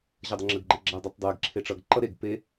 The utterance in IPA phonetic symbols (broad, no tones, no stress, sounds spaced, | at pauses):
ʑ ʌ dˤ ə ŋ͡ǁ ə ɡ ɡ͡ǃ e ɡ͡ǁ a dˤ ʌ tˤ dˤ e ɡ ǁʰ e ʈ͡ʂ ʌ ɡ ǃ ʌ ɾ e ɡ p e